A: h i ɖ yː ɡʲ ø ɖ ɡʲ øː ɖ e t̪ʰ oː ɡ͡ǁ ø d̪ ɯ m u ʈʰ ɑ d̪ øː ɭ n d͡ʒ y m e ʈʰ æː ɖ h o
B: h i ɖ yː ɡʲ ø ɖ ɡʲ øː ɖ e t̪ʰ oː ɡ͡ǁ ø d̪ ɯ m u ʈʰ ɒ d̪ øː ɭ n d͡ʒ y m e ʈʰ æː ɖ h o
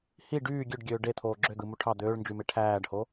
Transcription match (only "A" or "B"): A